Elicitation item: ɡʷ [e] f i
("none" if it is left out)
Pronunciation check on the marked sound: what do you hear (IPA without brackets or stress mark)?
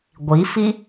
i